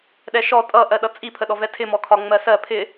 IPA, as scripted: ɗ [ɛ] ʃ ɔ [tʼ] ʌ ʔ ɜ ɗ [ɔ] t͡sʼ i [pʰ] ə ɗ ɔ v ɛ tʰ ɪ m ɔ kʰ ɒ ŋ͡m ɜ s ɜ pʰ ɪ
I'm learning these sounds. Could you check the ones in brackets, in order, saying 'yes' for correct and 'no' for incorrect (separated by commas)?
yes, yes, no, yes